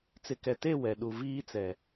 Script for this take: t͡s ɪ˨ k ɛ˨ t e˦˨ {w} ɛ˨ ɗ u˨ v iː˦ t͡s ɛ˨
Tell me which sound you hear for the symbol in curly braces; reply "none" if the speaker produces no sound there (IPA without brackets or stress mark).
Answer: w